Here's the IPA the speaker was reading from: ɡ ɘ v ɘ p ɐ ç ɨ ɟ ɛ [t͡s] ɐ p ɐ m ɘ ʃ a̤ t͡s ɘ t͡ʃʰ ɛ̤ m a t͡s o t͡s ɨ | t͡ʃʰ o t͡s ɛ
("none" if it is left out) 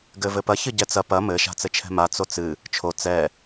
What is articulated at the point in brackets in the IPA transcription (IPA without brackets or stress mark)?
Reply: t͡s